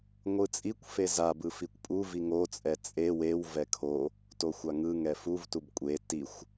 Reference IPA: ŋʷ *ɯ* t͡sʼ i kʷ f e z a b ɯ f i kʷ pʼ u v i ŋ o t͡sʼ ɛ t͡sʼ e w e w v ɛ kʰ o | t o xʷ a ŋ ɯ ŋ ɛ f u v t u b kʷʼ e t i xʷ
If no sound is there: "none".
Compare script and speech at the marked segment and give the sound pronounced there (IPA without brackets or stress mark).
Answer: ɯ